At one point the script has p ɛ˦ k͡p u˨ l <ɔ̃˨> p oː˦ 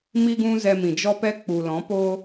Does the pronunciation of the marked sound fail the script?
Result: yes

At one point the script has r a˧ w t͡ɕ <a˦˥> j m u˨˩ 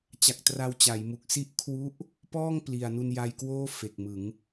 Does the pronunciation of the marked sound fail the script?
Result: yes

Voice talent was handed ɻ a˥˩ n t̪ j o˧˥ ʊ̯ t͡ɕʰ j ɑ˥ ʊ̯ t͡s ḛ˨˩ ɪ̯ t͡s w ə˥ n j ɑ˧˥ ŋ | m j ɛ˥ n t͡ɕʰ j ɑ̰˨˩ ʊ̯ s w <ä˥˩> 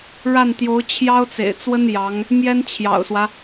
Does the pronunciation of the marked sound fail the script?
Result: yes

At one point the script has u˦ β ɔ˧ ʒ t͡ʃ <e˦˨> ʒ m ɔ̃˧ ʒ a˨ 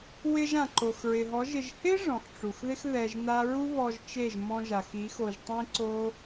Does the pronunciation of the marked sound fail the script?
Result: no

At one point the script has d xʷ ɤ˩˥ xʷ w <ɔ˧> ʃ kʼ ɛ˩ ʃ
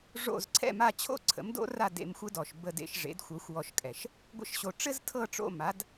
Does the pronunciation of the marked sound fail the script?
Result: no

